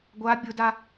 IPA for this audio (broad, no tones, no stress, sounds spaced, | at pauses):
ɡʷ a bʲ ʊ d a